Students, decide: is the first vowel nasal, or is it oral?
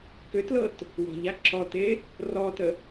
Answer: oral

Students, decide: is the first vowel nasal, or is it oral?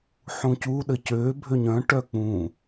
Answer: nasal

